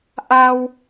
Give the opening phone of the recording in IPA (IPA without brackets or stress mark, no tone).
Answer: ʔ